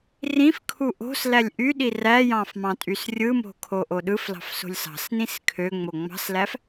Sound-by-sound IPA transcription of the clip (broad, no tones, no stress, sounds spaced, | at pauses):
r ĩ f kʰ u ʔ o̤ s l æ lʲ ʔ y ɗ i r æ j ɑ̃ f m ɑ̃ tʼ y s rʲ ɯ m o̤ kʰ o ʔ o ɗ ɯ f l ɑ̤ f s o̤ lʲ s ɑ̤ s n ĩ s kʰ ø ŋ͡m o ŋ͡m ɑ̤ s l æ f